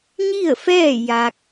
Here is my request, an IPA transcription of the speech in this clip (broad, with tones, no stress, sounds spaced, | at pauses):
ɲ i˥˨ ə̯ f ɛː˥˨ j a˧ k̚